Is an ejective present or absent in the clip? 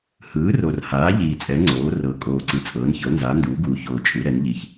present